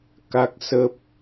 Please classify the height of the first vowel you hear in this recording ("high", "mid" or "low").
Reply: low